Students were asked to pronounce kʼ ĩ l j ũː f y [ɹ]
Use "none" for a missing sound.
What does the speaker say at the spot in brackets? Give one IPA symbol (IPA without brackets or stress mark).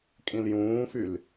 l